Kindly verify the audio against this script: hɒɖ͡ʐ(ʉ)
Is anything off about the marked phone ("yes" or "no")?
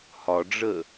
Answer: yes